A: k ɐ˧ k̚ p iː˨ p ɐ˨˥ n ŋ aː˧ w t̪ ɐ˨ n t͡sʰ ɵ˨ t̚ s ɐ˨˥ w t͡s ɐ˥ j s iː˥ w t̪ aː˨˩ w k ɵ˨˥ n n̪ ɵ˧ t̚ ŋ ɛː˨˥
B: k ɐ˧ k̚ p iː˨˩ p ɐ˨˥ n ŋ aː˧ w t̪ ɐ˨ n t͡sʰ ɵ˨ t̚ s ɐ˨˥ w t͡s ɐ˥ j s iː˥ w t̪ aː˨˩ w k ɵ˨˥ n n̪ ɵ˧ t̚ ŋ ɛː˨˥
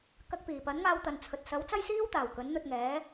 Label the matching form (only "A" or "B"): B